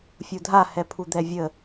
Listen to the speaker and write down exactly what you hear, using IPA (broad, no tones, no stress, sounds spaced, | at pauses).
fʲ u dʱ a h ɛ pʰ u d̪ ɛ vʲ ə